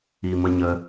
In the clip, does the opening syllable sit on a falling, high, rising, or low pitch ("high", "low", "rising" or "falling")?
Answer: low